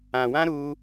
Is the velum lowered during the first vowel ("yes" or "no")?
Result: yes